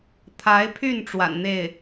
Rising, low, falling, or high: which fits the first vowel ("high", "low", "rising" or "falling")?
rising